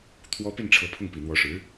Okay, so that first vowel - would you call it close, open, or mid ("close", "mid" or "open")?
mid